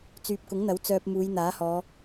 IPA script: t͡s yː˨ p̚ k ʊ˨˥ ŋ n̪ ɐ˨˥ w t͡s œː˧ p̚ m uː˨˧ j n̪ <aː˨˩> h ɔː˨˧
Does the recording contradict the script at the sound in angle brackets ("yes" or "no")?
yes